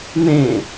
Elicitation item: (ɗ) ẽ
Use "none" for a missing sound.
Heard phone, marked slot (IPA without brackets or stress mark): n